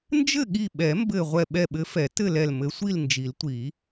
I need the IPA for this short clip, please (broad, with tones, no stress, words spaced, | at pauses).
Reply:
nd͡ʒɘ˥˨ɠi˧˩ɓɛ˨˩˦ mbɘ˧˩ ʁʷɛ˧˩ɓɛ˧˩ɓɘ˨˦fɛ˨˩˦ tɘ˥˨lɛ˧˩l mɘ˨˦sʷi˥˨lnd͡ʒi˨˩˦ltʷi˨˩˦